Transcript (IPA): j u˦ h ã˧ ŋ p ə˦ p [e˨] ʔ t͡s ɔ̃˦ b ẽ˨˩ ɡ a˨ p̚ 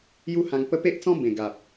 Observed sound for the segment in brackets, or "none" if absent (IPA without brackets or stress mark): e˦